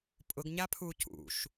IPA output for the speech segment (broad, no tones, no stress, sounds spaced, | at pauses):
pʼ ʊ ɡ ɲ a pʰ u c ṵ ʃ